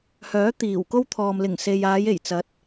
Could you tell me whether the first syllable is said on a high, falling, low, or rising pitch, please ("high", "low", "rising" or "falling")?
rising